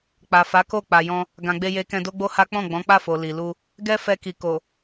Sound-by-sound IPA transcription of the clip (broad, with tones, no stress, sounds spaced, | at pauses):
k͡p a˨ f a˨˦ k o˦˨ k͡p a˨ j ɔ̃˧ | ɡ ã˨ ɡ͡b e˧ j e˧ k ɛ̃˧ d o˦ ɡ͡b o˦ h a˦ k͡p ɔ̃˦˨ ɡ͡b ɔ̃˨˦ k͡p a˦˨ f o˨ l i˨ l u˧ | ɡ ɛ˦ f ɛ˧ k i˨ k o˨